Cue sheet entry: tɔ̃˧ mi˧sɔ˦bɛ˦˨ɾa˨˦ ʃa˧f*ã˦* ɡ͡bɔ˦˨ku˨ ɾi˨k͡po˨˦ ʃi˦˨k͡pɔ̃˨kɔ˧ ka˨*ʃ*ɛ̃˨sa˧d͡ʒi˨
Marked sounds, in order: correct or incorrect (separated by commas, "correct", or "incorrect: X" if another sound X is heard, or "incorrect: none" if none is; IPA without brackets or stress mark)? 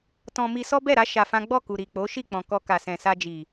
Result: correct, incorrect: s